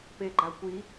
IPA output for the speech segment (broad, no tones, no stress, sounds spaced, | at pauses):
p e ɡ͡ǃ a kʷ i